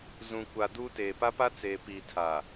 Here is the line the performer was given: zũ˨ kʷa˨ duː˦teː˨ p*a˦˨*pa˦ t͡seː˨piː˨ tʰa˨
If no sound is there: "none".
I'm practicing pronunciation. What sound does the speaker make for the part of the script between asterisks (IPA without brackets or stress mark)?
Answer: a˦